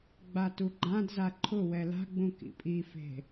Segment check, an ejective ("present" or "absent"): present